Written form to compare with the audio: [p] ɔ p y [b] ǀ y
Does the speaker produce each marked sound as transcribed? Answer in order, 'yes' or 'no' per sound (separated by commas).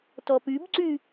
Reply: no, yes